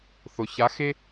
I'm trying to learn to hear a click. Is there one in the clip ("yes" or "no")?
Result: no